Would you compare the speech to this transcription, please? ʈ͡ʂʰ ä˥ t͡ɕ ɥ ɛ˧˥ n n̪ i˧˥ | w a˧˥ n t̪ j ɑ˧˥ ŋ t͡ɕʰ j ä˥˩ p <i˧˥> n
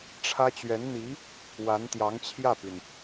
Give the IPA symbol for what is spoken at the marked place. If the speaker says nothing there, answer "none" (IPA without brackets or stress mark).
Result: i˩